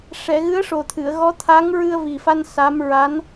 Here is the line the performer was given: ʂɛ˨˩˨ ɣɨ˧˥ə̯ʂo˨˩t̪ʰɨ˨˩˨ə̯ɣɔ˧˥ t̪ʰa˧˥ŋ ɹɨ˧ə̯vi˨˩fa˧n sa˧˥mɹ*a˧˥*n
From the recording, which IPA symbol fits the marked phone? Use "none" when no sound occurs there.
a˧˥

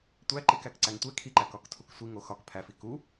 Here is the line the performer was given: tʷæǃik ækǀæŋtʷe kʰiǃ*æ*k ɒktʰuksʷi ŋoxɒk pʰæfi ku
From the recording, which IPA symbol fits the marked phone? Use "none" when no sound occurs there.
æ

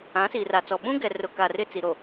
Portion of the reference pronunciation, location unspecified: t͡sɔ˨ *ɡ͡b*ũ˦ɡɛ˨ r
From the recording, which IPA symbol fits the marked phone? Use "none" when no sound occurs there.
ɓ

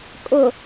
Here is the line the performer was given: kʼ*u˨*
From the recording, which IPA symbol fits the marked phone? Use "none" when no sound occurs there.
ʊ˨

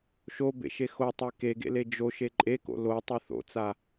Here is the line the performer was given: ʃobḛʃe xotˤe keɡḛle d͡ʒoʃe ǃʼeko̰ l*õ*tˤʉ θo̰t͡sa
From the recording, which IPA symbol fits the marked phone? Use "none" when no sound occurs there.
o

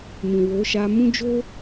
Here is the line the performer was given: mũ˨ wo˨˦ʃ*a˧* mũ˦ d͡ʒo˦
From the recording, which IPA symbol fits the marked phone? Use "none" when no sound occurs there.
a˧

